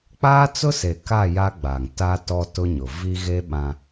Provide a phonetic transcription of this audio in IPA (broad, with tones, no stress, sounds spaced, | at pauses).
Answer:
k͡p aː˦ t͡s ʊ˦ s e˨ k a˦˨ j a˦ ɡ͡b a˨ ŋ t a˦ t ɔ˦ t ʊ˦ ɲ ʊ˨ v i˦ ɣ e˦ ɓ ã˦